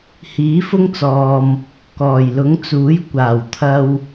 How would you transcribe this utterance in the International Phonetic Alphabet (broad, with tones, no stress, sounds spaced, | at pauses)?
h iː˨˥ f ʊ˥ ŋ t͡s ɔː˨ m | k ɔː˨˩ j l ʊ˨˥ ŋ t͡s uː˨˥ j kʷ aː˨˩ w t̪ʰ ɐ˧ w